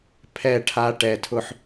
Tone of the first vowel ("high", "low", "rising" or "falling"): falling